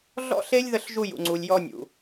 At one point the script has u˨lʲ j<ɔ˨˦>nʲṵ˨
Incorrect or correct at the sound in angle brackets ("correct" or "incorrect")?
incorrect